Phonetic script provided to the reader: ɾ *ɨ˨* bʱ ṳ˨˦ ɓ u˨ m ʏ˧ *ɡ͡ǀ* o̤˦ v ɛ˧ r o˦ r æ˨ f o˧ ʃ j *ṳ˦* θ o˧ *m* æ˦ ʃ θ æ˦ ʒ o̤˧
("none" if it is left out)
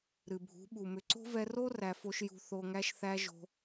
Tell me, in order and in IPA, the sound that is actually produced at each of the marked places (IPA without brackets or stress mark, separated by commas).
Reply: ɨ˨, ǀ, ṳ˧, ŋ